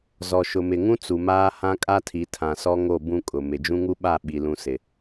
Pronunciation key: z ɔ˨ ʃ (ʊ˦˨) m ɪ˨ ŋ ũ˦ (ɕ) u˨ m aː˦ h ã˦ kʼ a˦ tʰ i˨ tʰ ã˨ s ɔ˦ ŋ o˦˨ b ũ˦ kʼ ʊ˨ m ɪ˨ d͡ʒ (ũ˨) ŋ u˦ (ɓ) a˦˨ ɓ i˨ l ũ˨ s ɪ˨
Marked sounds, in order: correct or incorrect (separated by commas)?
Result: incorrect, incorrect, incorrect, correct